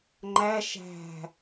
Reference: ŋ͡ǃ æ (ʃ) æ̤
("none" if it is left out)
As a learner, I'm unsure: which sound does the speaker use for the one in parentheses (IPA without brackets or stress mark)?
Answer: ʃ